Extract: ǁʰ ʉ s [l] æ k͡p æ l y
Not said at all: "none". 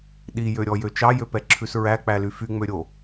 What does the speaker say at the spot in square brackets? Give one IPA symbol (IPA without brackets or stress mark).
ɹ